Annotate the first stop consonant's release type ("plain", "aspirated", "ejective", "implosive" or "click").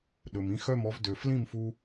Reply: implosive